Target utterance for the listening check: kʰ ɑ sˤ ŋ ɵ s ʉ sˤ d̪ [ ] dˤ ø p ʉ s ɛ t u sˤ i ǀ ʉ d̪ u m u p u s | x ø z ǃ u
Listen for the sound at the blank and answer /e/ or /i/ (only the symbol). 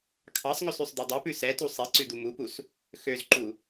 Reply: i